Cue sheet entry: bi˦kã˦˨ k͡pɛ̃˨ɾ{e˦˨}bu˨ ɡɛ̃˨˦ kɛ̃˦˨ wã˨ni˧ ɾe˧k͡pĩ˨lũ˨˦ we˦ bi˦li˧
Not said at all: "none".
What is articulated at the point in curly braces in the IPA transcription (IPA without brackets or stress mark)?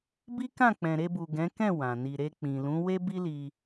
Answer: e˧